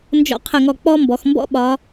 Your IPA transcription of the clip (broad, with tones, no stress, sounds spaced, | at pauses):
n d͡ʒ ɔ̰˧ qʰ ə˧˩ ŋ ɔ˧˩ k͡p ɔ˥ m b ɔ˩˧ x m b ɔ̰˥ ɓ ɒ˩˧